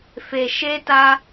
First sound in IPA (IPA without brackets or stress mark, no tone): f